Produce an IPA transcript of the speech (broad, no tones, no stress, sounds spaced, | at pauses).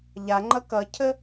ʎ a ŋ͡ǃ ʌ k ʌ cʰ ə